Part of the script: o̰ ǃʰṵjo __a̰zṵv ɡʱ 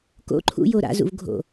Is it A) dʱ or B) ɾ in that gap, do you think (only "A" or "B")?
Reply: B